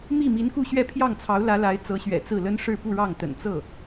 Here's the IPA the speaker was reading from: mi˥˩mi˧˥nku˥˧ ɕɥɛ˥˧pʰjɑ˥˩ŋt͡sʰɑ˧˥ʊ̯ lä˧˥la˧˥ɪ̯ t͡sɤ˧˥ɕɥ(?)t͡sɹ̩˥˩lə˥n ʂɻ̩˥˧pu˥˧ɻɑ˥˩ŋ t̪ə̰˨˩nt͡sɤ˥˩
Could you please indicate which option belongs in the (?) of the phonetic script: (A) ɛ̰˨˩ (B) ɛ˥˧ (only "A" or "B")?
A